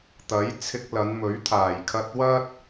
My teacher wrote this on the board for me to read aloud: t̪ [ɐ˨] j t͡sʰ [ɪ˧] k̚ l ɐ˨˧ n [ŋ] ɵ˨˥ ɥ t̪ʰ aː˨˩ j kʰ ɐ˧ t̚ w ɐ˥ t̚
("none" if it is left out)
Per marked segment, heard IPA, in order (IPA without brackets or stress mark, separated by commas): ɐ˨˥, ɪ˧, m